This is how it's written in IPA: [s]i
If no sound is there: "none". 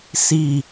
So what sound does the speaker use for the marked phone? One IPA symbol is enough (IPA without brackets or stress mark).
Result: s